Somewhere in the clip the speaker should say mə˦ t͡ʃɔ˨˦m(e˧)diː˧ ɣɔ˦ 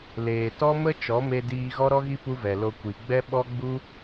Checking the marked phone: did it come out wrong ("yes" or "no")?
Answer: no